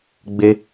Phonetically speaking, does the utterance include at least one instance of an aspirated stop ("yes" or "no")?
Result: no